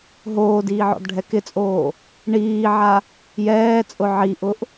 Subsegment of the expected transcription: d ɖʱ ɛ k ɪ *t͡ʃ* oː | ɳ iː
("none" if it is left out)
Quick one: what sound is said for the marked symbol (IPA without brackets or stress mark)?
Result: t͡sʼ